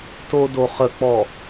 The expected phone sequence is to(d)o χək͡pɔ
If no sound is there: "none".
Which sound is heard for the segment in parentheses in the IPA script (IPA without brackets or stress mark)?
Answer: d